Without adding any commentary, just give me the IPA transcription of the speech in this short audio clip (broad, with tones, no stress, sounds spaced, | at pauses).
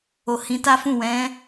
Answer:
o˨ h ĩ˨˦ t a˦ f ũ˦˨ w ɛ̃˨˦